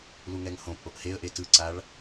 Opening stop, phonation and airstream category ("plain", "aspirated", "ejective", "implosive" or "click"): ejective